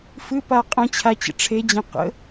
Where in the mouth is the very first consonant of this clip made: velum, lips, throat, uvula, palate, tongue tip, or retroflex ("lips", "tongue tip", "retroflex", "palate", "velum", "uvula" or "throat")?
lips